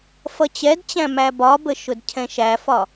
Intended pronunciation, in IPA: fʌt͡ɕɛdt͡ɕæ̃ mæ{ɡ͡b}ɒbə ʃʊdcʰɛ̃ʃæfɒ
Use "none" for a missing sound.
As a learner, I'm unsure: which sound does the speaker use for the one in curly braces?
b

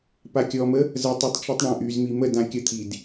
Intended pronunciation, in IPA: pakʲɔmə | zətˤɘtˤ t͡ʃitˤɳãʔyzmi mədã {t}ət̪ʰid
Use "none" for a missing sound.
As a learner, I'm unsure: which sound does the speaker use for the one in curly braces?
kʲ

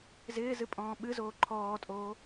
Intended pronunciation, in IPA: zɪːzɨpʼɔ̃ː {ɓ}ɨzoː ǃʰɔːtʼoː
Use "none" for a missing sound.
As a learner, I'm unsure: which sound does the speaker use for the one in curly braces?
ɓ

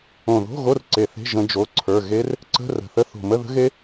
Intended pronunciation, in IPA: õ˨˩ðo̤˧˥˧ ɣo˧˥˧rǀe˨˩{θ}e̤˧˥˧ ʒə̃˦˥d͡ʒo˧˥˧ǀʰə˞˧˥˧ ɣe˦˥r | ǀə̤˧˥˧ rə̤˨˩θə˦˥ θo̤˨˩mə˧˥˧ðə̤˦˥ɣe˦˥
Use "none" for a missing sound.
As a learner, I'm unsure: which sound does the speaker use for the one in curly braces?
θ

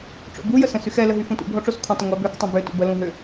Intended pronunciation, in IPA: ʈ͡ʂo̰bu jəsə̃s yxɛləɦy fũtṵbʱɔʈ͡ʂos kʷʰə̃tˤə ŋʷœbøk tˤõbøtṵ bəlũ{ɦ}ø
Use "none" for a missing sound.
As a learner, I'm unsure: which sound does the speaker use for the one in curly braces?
ɦ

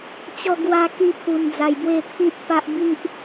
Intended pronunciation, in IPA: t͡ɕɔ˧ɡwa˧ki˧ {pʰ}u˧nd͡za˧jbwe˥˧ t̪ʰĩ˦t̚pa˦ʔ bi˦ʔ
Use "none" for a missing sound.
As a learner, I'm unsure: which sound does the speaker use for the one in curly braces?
pʰ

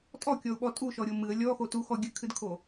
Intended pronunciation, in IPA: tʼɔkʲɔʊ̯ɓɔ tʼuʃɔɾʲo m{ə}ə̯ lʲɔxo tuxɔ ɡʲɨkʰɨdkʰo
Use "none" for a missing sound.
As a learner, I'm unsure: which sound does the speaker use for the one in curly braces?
ɨ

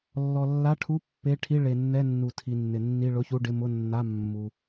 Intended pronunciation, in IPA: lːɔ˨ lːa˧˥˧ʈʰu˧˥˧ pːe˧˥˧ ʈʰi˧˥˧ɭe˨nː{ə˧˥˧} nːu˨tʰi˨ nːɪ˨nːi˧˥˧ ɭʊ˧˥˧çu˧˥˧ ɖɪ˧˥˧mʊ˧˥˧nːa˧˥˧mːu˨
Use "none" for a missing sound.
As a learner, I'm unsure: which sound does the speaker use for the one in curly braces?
ɛ˧˥˧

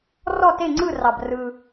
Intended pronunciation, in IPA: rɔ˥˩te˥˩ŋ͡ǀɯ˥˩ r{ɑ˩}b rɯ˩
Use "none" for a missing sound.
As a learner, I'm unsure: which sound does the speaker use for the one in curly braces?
ɑ˩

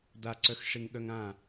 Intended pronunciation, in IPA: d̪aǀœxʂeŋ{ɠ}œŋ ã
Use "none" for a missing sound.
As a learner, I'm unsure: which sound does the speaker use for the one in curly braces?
ɠ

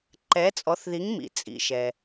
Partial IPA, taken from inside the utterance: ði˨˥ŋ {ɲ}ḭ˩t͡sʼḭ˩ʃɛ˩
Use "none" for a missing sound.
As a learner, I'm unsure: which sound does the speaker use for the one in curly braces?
m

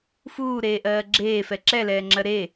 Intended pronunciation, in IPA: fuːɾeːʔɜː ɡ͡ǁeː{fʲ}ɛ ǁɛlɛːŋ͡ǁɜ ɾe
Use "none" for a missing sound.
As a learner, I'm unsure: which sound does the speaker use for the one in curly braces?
f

